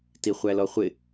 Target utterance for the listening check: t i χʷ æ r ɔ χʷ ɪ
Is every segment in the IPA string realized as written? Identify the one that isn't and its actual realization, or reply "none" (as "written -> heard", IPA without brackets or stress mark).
r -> l